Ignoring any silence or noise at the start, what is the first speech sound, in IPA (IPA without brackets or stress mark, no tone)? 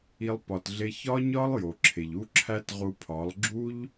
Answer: i